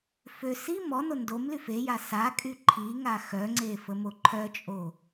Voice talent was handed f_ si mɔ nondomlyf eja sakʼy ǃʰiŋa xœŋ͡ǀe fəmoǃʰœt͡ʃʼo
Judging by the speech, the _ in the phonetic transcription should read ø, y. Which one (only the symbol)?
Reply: ø